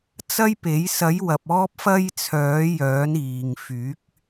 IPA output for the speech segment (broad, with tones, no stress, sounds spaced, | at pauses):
t͡s ɐ˥ j p e˨˥ j s ɐ˨˥ j w ɐ˨ p̚ ɔː˥ p̚ f ɐ˥ j t͡sʰ œː˨˥ j œː˨˥ n iː˨ ŋ f yː˨˥ k̚